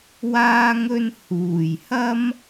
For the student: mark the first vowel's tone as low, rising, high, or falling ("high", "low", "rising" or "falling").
high